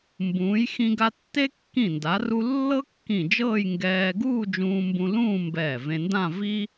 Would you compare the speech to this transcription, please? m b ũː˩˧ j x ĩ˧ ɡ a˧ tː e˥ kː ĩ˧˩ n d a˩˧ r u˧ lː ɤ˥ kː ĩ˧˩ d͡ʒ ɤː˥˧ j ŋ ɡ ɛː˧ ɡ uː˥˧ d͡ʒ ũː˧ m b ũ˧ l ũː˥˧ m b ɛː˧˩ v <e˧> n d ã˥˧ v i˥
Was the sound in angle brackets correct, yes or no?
no